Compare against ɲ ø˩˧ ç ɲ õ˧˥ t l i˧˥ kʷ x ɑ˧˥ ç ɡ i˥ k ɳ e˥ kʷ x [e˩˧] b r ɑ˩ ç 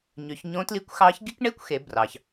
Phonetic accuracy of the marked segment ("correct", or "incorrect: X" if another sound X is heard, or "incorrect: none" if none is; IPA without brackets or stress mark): correct